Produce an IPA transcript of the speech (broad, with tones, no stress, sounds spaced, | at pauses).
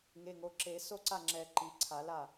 ŋ e˩˧˩ ŋ o˩˧˩ ǁ e˨˩˦ s o˥˩ ǀ a˥˩ ŋ͡ǁ ɛ˨˩˦ ǃ i˩˧˩ ǀʰ a˨˩˦ l a˥˩